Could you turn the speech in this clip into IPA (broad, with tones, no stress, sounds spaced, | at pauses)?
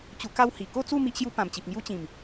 t͡ɕ u˧ k a˥˧ w h i˨˩ k o˥˧ t͡s u˥˧ m i˦ ʔ ɕ j u˦ p ã˨˩ m t͡ɕ i˨ p̚ ŋ j u˦ t͡ɕ ĩ˨˩ m